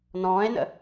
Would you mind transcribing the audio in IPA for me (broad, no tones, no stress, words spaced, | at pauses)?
nɔ̃ːe̯nə̰